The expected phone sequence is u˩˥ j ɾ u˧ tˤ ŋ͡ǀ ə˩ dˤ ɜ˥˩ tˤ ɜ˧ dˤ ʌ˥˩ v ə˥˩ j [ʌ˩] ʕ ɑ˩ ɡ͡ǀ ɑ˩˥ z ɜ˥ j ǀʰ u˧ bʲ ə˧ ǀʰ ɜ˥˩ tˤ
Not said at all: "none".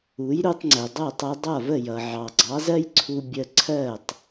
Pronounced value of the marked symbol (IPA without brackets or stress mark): ʌ˩